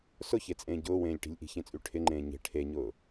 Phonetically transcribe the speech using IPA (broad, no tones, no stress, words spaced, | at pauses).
sʊçet͡sʼẽː ɟʊːwẽːlʲʈi̤lʲ ʔi̤çẽt͡sʼy ʈʰɪŋ͡ǃẽː ɲe̤ ʈʰeɲʊː